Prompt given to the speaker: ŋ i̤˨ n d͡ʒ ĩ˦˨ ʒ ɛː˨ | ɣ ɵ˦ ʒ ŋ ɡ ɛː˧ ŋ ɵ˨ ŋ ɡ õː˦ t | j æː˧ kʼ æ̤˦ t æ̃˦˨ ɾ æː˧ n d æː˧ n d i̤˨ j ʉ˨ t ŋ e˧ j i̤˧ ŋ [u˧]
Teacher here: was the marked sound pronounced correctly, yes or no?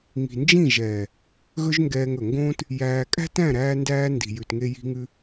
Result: no